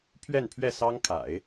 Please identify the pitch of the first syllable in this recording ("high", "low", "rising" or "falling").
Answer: falling